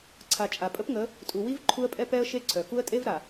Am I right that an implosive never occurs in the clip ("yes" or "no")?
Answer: yes